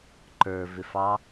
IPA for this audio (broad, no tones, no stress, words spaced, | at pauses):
ǃə˞ vɪfɑ